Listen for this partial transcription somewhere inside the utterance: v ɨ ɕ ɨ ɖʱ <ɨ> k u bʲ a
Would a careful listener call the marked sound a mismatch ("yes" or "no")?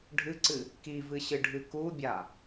no